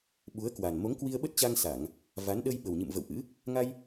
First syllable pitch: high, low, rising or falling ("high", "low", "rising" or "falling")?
rising